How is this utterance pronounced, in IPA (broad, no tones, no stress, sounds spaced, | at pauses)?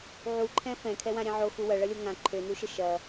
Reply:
ʕ u ǃʰ ɛ̃ f ɛ̃ kʰ ɛ w ã ɾʲ ɛ̃ ʕ o x u w ɐ ɭ ɐ lʲ o ŋ ã ǃʰ ø n u ʃ ə ʃ ɐ